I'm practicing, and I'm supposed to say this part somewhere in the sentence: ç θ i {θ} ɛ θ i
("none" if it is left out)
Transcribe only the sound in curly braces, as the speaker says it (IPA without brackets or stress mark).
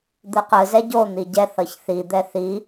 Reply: d̪